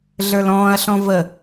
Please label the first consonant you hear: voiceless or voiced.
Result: voiced